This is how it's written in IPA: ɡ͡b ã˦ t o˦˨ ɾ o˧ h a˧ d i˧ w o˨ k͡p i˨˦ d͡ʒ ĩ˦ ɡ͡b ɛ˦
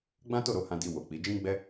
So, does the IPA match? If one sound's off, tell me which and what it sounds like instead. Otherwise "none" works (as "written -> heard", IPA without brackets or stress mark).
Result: a˧ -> ã˧